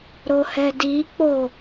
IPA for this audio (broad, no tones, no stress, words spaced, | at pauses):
ɾohɛdik͡po